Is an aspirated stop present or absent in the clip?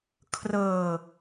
present